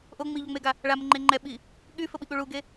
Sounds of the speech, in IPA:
ʔ o ŋ͡m i ʎ ɔ ŋ͡m e ɡ a | ɭ a m ə ŋ͡ǃ e ŋ͡ǃ ɛ ɓ i | ɠ y f ə ɓ i ɠ u ɭ u ɡ e

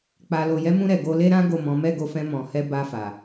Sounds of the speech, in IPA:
k͡p a˨ l o˨ j ɛ˨˦ m ũ˧ ɾ ɛ˨ ɡ o˧ l e˦ ɾ ã˦ ɡ o˦˨ m ɔ̃˨˦ m ɛ˦˨ ɡ o˧ f ɛ̃˧ m ɔ̃˨ h ɛ˧ b a˧ f a˨

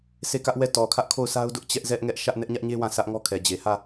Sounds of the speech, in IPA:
sʰ e˦˨ k ä˦ ʔ w ɛ˦˨ t ɔ˨ kʰ ä˦ ʔ kʰ o˦˨ ʊ̯ sʰ a˦ ʊ̯ d ʊ˦ ʔ t͡ɕ ɛ˦ ʔ z ɛ˦ ʔ ŋ ɛ˦ ʔ ʃ ä˦ ʔ n ɛ˦ ʔ ɲ ä˦ ʔ ɲ e˦ w ã˦˨ s ä˦ ʔ ŋ ɔ˦ kʰ ɛ˨ d͡ʑ e˨ h ä˦˨

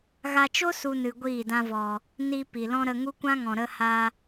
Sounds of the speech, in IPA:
ɣ a˧ t͡ʃ o˦ s u˧ n ɨ˨ ɡʷ iː˦˨ d ã˧ v ɔ˨ | n i˧ p i˨ l ɔ̃˦ ɾ ə˧ ŋ u˦ kʷ ã˦ ŋ ɔ̃˨ ɾ ə˧ h a˧

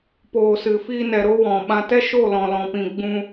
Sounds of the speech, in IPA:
p oː˨ s ɨ˨ f iː˧ n ɛ˨ ɾ o˦ w ɔ̃˨ ɓ ã˧ t ɛ˦ ʃ o˦˨ l ɔ̃˨ l ɔ̃˨ p ĩ˨ ɡ͡b ũ˧

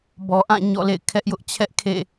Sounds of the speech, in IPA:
b ɔ˨ ʔ ã˦˨ ɲ ɔ̰˦˨ l ḛ˦˨ ɪ̯ kʰ ɛ˦ ʔ j ʊ˦ ʔ t͡ɕʰ ɛ˦ ʔ kʰ ḛ˦˨

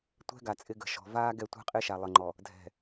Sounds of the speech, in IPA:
tʷ ɛ̤˦ ɡ a˨ t͡sʼ ɪ˦ ɡ ə̤˨ ʃ ɔ̤˨ v aː˦ ɡ ɛ˦˨ tʷ ɛ̤˦ qʼ ɪː˦ ʃ a˨ lˠ ə˨ ŋ͡ǃ ɔ˨ | dʱ ɛ̤˨

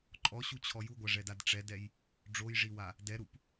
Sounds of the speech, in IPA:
ǃʼ ɔ ɕ u t͡ɕʰ ɔ j u ɡʷ a ʐ ɛ d a d ʈ͡ʂ ɛ d ɛ j | ɖ͡ʐ o j ʐ i w a | d ɛ ɾ u p

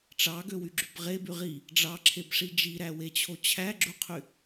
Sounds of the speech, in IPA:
ʈ͡ʂ ɑ ɡ ø w y ɡ͡ǁ y b ʁ e b y ʁ i | ɖ͡ʐ ɑ ǁʰ e b ʂ i d͡ʒ i ɾ æ w e t͡ɕʰ o t͡ɕʰ æ ɡ͡ǁ u qʰ y

